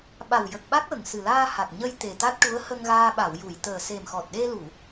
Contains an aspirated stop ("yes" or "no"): no